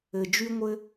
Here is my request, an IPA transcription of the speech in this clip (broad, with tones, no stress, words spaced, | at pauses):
ɘ˩ d͡ʒy˧ŋʷɘ˧